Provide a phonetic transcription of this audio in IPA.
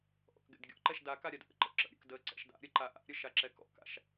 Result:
ʔ ɔ̰ k ɡ ɛ̰ d ɡʲ ɔ̰ ǃ ɛ ʃ d a k a ɾʲ a d ʔ ə̰ ǃ ə̰ ǁ ə̰ ɾʲ ə̰ k d ə ǀ ɛ̰ ʃ d a̰ ɾʲ ə ǃ a ʔ a̰ ɾʲ ə ʃ a ǁ ɛ k ɔ̰ k a̰ ʃ

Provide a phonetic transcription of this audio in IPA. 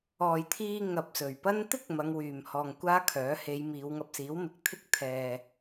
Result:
ɔː˨ j t̪ʰ iː˧ ŋ ɐ˨ p̚ s ɵ˨˩ ɥ p ɐ˥ n t̪ ɪ˥ k̚ m ɐ˨˧ ŋ w yː˨ m h ɔː˧ ŋ kʷ aː˥ kʰ œː˨˥ h e˨˧ j m iː˨˧ w ŋ ɐ˧ p̚ s iː˨˥ w m ɪ˨ k̚ t̪ʰ ɪ˥ k̚ t̪ʰ ɛː˧

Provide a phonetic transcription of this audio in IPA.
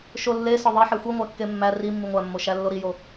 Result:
ʃ o lː e s ɒ ðˤ e ħ e xʷ i ŋʷ æ kː e mː æ r i mː i ŋʷ æ mː o ʃ æ lː o ɾ i j o

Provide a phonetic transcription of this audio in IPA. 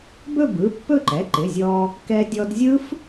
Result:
b ɵ˥˧ b ɯ˩˧˩ pː ɵ˥˧ ǃ ɛ˩˧˩ ǃ ɪ˩˧˩ zʲ ɔː˧ | k ɛ˧ dʲ ɔ˧ d zʲ ɯ˦˥ f

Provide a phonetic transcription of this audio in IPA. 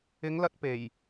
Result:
ɪ˨˧ ŋ l ɐ˧ t̚ p e˨˩ j

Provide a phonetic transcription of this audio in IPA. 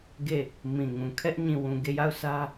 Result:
ɡ e˦˨ | m ĩ˨ ŋ ũ˨ kʰ ɛ˦ ʔ ɲ ĩ˨ w ũ˨ ɡ e˦˨ j a˦˨ ʊ̯ s ä˦

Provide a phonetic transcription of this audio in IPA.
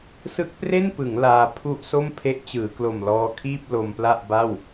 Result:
s ɯ˦˥ k̚ p r e˥˩ n p ɯ˩˦ ŋ l aː˧ pʰ u˥˩ ʔ s o˥˩ m pʰ e˦˥ ʔ t͡ɕ ɯː˩˦ k l o˨˩ m l ɔː˧ kʰ iː˥˩ p̚ l o˧ m p l a˥˩ ʔ b a˥˩ w

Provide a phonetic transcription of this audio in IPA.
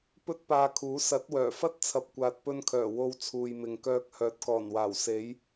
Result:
p ɵ˥ t̚ p aː˧ kʰ uː˨˥ s ɐ˨˥ t̚ w œː˨˩ f ɐ˥ t̚ t͡sʰ ɐ˨ p̚ kʷ aː˨ t̚ p ɵ˧ n kʰ œː˨˩ w o˧ w t͡sʰ uː˨ j m ɪ˨ ŋ k œː˧ k̚ h œː˨˥ t̚ k ɔː˨˩ n w aː˨˩ w s e˨˥ j

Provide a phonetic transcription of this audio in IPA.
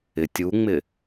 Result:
ɪ tʲ u ŋ͡m ɪ

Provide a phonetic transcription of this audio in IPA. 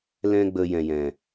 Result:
l ɛ̃˦ ɡ͡b ə˧ j ɛ̃˨ j ɛ̃˨

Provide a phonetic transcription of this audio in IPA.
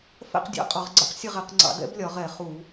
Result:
f ɛ̰˥˨ q dʲ ɑ̰˦˥ qʼ ɒ˧˩˧ ʁ ɡ͡ǀ ɛ̰˦˥ q sʲ ə˥˨ ʁ ɛ˧˩˧ q ŋ͡ǀ ɑ̰˧˩˧ d ɛ̰˦˥ b lʲ ɒ˧˩˧ ʁ ɛ˧˩˧ χ u˧˩˧

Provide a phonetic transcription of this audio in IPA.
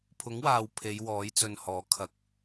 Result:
pʰ ʊ˨˥ ŋ w aː˨ w pʰ e˨˧ j w ɔː˨˥ j t͡s ɵ˨ n h ɔː˨˥ kʰ ɐ˨ k̚

